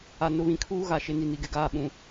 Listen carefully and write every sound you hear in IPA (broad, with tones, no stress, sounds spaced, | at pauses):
a˨ n ʊ˨ β ĩ˨ kʰ uː˦ ɣ a˨ ʃ ɪ˨ n i˨ n i˨ ɡ ɪ˨ ɡ aː˦˨ ɓ ũ˨